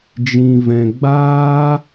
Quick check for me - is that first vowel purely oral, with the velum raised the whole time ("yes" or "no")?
no